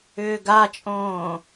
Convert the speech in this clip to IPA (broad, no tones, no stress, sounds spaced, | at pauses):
ʏː ɡ a t͡ʃʼ õː